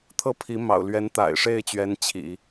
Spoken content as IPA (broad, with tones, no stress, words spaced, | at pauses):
t̪ʰɤ˥˩pʰi˧˥mɑ̰˨˩ʊ̯ lɥɛ˧˥nt̪a̰˨˩ɪ̯ʂe˥˩ɪ̯t͡ɕɥɛ˧˥n t͡ɕʰḭ˨˩˦